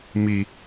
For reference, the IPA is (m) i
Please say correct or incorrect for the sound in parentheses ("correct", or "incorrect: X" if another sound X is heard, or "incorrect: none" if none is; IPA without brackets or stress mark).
correct